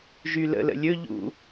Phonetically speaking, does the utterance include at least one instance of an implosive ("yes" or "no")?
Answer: no